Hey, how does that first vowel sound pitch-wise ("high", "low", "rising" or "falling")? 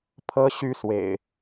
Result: high